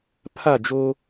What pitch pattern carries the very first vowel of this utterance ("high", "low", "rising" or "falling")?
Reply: falling